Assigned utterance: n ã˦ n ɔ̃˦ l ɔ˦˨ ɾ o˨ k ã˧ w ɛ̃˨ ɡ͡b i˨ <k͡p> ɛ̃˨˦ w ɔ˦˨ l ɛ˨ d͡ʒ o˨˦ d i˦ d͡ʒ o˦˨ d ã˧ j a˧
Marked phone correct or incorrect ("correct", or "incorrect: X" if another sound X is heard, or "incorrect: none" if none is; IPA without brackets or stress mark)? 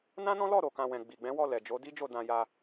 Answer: incorrect: ɡ͡b